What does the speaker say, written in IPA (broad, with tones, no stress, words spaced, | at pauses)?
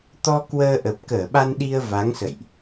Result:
t̪ɔ˧ kwəː˧ʔə˨˩p̚ kəː˧˩ɓa˧nɗi˧ə̯ va˨˦ŋsə̰˧˨jʔ